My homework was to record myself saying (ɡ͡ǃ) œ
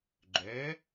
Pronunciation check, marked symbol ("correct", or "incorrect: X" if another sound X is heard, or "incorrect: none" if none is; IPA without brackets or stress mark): correct